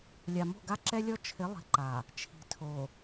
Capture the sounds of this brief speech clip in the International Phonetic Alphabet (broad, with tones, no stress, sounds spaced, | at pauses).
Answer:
lʲ a˨ m o̤˦˨ ɡ a˦ ǁ ɛ˦ lʲ ɔ˦ t͡ʃʰ ɪ˨˦ lˠ i̤˨ ǃ a˨ | t͡ʃʰ i̤˨ tʰ o˨